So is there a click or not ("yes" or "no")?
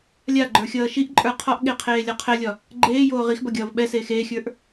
yes